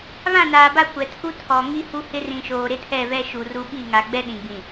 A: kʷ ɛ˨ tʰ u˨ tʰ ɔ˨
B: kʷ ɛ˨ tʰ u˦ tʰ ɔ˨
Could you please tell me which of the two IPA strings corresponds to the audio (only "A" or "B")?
B